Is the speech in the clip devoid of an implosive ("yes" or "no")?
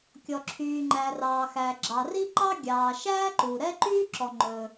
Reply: yes